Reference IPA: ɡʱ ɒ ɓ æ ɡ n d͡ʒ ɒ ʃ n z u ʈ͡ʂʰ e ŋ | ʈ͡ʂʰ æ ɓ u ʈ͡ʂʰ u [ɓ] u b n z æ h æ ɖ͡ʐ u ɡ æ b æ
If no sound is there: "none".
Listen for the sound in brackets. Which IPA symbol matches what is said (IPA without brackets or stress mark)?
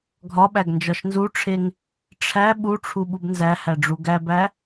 ɓ